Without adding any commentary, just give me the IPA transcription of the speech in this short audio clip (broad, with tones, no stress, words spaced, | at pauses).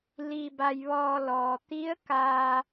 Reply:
liː˧ba˧jʋɔː˧lɔː˩ t̪i˧˥ə̯ kaː˧